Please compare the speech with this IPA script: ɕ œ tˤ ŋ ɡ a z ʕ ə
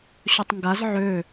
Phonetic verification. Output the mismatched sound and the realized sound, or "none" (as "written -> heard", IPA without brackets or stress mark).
ə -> ø